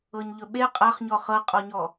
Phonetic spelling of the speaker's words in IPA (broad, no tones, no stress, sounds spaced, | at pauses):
ɤ ɲ ʎ ɵ ɓ e qʼ a χ ɲ ɔ χ ɤ qʼ ɔ ɲ ɔ